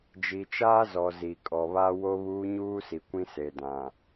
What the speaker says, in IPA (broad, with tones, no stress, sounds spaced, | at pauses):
d͡ʒ i˨ t͡ʃ aː˦ z ɔ˨ z i˨ kʼ ɔ˨ β a˦ w o˦ β uː˦ ɲ uː˦ s i˨ kʷ ĩ˦ s e˨ d ã˨